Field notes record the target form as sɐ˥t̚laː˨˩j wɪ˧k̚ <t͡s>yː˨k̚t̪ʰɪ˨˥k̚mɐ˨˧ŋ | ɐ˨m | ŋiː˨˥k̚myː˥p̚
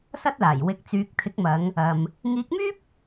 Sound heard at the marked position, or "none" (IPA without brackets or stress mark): t͡s